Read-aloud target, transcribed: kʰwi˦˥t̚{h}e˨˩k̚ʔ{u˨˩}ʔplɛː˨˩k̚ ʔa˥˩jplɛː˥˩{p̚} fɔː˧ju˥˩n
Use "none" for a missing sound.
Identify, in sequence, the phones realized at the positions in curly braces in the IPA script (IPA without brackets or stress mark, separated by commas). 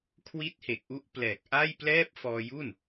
h, u˦˥, p̚